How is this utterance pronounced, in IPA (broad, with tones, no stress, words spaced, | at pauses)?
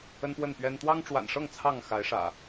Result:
ə˦npwə˥˨npɥɛ˦n t̪wɑ˦ŋʈ͡ʂwa̰˨˩nʂɤ˥˨ŋ t͡sʰɑ˥˨ŋxa˨˦ɪ̯ʂä̰˨˩